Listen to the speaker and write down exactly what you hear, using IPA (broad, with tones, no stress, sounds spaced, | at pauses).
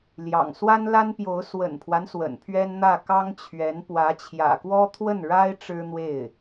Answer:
l j ɑ̰˨˩ ŋ s w a˥ n l a˥ n p j o˧˥ ʊ̯ s w ə̰˨˩ n pʰ w a˦ n s w ə̰˨˩ n pʰ ɥ ɛ˥ n n̪ ä˥˩ k ɑ˥ ŋ t͡ɕʰ ɥ ɛ˧˥ n p w ä˧˥ t͡ɕʰ j ä̰˨˩ k w ɔ˥ t̪ʰ w ə˥˩ n ɻ a˥ ɪ̯ ʈ͡ʂ ɻ̩˥ n̪ w e˥˩ ɪ̯